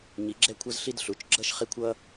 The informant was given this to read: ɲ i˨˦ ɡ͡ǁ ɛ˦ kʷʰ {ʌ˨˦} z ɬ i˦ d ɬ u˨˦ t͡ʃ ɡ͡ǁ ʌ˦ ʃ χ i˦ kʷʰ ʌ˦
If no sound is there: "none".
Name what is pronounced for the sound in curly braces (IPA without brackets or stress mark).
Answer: ʌ˦